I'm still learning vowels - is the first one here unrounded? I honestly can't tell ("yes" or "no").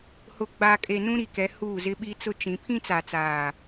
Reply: no